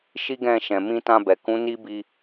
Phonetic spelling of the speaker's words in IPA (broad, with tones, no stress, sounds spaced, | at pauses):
ʃ i˦ ɡ ɛ̃˦˨ ʃ ɛ̃˨ m ĩ˧ t ã˧ b ɛ˨ k ũ˨˦ n i˦ b i˧